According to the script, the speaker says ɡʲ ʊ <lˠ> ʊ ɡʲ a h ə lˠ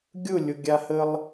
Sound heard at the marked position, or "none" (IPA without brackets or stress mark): lʲ